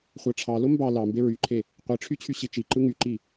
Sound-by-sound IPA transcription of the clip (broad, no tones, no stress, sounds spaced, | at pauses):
χʷ æ ʈ͡ʂʰ ɑ l o m b ɑ l ɑ m b e ɹ y ǃʰ e | qʷ i ʈ͡ʂʰ y t͡ɕʰ y ɕ i t͡ʃ i ǃ ɯ ŋ y ǃ i